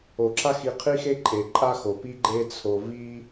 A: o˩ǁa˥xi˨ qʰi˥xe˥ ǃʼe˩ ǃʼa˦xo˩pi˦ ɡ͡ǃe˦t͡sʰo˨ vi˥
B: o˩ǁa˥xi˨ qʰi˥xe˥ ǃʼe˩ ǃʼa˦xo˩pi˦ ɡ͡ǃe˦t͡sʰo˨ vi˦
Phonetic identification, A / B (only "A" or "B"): A